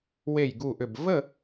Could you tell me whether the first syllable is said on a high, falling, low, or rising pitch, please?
falling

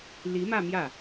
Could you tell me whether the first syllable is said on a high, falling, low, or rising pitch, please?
rising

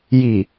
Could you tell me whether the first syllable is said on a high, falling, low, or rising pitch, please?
low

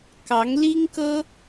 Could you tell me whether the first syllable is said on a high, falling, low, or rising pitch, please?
rising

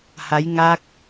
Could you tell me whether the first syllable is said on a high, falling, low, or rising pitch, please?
rising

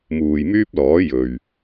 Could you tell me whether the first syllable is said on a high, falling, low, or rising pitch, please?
low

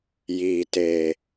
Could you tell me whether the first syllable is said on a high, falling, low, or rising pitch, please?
low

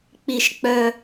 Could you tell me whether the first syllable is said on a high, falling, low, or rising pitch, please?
low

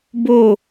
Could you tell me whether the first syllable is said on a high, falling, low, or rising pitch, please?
falling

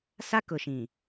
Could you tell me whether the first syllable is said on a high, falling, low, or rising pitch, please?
high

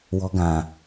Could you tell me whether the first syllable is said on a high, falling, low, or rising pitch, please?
high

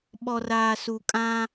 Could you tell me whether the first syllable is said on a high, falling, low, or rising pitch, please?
low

